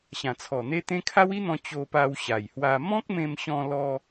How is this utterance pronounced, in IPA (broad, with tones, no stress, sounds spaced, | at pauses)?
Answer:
ɕ ã˨˩ t͡sʰ ɔ˨˩ n̪ e˦ t̪ ẽ˦ kʰ a˦ w i˦ n̪ ɔ̃˧ t͡ɕ o˧ p a˧ w ɕ a˨˩ j h w a˧ m ɔ̃˦ k̚ m ẽ˧ m ɕ ɔ̃˧ l ɔ˧